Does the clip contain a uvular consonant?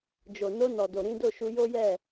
no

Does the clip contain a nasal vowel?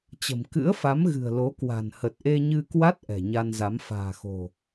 no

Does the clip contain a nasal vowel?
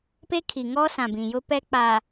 yes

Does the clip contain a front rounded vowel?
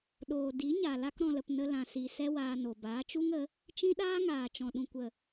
no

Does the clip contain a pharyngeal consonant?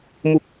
no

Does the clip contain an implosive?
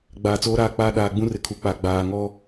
yes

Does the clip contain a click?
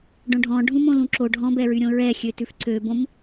yes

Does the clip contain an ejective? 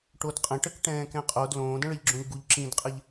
yes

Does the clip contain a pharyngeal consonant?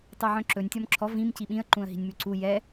yes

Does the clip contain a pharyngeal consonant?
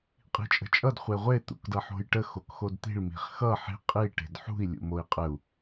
yes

